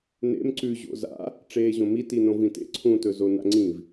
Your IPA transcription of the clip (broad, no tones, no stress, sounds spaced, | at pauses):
n ḛ m ǀ ʉ ʑ o̰ z a̰ | ʈ͡ʂ eː ʑ õ m i t i n õ v ĩ t ḛ ǀʰ ũ t ɵ z o n a̰ ŋ͡ǀ ĩ v